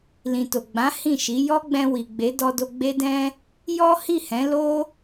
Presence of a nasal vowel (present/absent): present